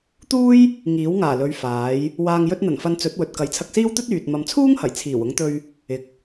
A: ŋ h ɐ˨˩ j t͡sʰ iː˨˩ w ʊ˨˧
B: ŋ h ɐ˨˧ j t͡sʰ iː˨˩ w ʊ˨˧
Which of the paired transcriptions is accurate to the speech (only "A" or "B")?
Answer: A